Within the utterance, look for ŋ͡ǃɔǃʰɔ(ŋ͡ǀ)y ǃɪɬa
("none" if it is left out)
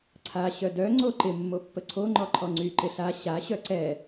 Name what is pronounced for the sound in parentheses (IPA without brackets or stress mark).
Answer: ŋ͡ǀ